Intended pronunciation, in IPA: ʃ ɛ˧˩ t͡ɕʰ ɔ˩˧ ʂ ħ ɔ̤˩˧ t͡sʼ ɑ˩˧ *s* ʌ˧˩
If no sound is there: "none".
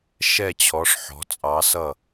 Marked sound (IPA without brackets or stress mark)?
s